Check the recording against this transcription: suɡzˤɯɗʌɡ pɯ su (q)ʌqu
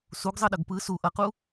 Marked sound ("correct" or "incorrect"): incorrect